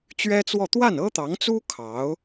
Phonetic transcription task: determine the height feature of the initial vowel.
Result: mid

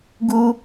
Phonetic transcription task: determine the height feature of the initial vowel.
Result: high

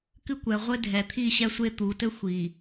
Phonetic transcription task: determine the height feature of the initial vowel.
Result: high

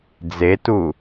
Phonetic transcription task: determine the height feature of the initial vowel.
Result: mid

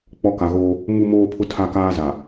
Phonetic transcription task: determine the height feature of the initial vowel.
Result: mid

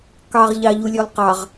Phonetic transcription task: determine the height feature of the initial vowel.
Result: low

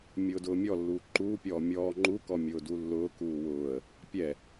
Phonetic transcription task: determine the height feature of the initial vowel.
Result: high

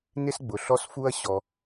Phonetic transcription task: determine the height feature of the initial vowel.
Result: high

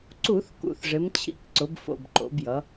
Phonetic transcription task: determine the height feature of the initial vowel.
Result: high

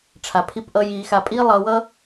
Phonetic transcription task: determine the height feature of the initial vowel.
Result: low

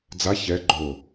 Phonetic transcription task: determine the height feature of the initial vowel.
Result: low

